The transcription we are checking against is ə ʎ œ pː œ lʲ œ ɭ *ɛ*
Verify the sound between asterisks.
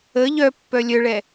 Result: correct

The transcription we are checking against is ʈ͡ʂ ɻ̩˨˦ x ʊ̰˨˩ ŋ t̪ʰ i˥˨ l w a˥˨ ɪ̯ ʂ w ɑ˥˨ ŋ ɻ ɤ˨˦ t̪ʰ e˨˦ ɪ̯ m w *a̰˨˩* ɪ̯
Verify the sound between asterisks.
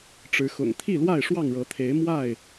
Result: incorrect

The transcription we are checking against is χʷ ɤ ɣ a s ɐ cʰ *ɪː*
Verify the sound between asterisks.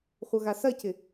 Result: incorrect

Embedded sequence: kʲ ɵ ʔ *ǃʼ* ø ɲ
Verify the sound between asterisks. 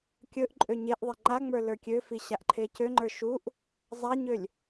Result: correct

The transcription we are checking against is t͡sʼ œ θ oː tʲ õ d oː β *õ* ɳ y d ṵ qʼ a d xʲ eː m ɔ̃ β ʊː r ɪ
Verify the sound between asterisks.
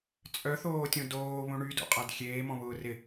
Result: correct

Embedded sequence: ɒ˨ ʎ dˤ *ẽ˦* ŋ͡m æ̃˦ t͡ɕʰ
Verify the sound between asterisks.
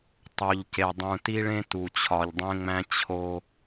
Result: correct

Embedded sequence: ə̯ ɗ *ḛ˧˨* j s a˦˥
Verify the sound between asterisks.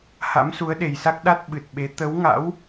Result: incorrect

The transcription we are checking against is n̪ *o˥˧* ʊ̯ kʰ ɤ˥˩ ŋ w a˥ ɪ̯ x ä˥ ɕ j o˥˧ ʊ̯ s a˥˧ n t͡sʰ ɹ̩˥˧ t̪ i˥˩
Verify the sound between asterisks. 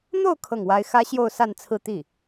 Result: correct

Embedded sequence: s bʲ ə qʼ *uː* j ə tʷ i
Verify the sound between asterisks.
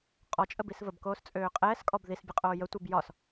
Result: incorrect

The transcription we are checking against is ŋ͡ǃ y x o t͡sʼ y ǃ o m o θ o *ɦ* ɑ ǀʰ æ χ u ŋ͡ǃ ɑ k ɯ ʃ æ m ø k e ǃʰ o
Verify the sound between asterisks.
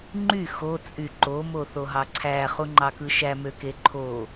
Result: correct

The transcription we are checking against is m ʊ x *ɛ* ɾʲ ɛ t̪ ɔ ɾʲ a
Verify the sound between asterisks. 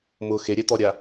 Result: incorrect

